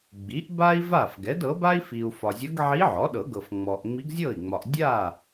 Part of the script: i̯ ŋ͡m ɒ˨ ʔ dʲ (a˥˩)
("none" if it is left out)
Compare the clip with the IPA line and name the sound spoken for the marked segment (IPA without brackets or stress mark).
a˥˩